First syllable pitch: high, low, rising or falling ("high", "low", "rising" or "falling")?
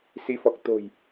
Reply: rising